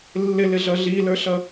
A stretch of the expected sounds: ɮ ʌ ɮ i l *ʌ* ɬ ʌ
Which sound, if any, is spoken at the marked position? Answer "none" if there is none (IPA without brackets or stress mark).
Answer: ə˞